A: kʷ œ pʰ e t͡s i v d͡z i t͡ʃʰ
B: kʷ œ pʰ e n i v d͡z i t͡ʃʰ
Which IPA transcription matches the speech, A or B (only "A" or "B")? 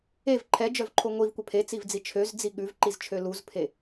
A